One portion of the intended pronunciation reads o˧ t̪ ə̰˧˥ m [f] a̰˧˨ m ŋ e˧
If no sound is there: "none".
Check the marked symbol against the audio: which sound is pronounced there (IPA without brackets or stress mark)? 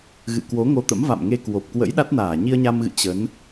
v